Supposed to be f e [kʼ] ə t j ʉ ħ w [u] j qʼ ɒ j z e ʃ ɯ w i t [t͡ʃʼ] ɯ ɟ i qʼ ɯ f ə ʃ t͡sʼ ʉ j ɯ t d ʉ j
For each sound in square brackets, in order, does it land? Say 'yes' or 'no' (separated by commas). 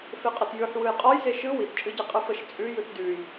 no, no, yes